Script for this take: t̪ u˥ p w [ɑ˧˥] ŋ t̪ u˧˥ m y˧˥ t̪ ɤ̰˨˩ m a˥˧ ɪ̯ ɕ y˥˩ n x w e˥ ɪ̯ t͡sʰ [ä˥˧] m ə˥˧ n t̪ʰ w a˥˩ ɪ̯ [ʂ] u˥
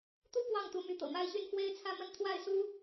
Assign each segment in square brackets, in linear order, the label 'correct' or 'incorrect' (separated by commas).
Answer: incorrect, correct, incorrect